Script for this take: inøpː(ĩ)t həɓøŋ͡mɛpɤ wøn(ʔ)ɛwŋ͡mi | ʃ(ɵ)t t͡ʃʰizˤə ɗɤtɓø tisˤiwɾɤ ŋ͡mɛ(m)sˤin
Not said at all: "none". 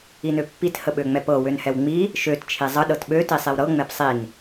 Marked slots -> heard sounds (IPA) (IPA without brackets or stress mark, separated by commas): i, h, ø, p